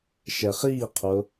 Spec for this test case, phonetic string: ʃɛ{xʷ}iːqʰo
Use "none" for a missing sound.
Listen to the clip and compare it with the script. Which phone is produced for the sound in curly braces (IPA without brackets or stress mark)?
χ